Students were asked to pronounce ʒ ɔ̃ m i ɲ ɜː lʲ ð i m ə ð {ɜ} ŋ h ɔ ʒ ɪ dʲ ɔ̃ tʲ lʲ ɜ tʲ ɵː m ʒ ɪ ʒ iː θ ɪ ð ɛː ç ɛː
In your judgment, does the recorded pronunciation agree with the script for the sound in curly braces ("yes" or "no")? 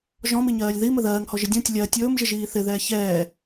no